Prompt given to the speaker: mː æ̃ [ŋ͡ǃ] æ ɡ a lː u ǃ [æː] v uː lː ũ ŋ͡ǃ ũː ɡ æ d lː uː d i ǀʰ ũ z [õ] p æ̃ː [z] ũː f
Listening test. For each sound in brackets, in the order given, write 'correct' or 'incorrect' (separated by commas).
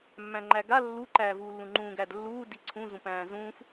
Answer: correct, correct, incorrect, correct